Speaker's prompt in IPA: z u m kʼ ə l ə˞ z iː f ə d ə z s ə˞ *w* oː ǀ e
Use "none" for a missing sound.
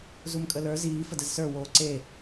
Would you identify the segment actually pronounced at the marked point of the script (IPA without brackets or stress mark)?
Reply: w